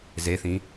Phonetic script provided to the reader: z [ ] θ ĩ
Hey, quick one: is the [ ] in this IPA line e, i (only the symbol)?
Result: e